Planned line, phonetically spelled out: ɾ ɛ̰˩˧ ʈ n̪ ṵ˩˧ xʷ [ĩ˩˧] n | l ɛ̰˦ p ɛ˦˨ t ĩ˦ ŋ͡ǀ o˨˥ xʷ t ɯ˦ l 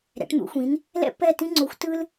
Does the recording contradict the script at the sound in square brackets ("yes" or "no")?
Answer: no